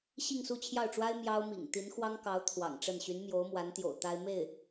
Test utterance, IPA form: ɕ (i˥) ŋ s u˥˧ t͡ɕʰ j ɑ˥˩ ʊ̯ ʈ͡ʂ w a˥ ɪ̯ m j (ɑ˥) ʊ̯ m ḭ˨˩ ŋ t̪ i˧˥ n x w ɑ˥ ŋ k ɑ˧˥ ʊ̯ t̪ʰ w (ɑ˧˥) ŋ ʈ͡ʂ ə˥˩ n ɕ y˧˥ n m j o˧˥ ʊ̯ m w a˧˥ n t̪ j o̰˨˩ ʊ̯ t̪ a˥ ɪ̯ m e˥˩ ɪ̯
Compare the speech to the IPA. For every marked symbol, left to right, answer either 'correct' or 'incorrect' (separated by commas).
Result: incorrect, correct, incorrect